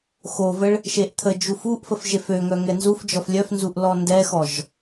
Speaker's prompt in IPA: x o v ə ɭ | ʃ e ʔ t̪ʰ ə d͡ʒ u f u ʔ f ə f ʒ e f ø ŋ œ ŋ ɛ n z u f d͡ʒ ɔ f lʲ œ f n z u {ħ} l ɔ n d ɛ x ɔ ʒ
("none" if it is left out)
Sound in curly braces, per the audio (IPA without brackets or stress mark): ʔ